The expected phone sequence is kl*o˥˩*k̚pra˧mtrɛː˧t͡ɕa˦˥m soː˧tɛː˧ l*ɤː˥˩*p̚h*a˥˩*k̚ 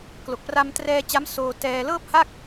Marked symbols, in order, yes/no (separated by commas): no, yes, yes